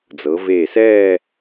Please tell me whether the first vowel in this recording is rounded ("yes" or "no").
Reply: no